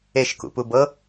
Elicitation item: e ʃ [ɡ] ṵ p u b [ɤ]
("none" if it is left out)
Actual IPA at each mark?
k, ɤ

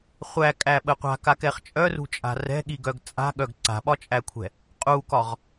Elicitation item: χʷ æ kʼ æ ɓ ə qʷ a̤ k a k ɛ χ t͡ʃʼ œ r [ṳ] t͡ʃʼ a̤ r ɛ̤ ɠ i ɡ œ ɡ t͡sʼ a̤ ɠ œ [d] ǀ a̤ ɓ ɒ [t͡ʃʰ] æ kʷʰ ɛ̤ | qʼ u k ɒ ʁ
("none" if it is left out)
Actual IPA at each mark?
ṳ, ɡ, t͡ʃʼ

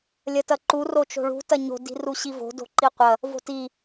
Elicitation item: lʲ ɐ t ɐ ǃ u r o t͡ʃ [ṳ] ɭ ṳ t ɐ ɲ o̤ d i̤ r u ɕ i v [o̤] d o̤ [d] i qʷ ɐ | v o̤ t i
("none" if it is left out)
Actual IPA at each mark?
o̤, o̤, ǃ

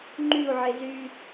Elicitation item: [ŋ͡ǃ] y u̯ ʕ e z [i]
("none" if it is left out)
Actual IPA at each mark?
ŋ͡ǃ, y

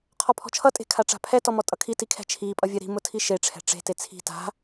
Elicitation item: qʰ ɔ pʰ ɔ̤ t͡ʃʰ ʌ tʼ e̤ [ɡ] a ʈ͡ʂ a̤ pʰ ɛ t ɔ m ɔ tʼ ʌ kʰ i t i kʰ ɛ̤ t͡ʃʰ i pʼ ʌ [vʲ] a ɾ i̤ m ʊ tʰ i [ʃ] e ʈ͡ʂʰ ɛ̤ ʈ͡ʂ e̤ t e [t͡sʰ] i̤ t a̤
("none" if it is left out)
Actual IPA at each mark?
kʰ, vʲ, ʃ, t͡sʰ

